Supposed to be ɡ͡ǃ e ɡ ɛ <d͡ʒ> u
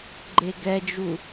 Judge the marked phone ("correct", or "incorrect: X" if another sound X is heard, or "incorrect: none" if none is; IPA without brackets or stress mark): correct